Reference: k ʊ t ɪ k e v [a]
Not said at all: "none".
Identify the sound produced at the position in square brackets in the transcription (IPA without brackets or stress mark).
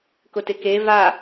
a